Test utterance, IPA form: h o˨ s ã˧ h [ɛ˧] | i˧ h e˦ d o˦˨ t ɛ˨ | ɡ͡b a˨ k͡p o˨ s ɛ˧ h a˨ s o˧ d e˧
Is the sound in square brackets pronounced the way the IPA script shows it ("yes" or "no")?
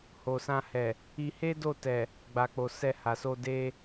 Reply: no